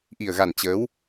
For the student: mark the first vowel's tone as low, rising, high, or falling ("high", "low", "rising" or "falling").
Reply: low